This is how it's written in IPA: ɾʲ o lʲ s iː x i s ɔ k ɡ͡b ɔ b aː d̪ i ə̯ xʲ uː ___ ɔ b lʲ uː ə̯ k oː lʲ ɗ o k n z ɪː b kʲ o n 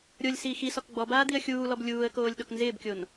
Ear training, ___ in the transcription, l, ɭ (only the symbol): l